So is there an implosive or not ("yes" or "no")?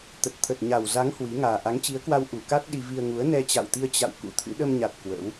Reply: yes